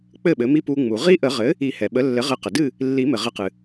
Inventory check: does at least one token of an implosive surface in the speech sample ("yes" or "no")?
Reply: yes